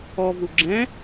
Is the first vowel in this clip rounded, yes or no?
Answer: yes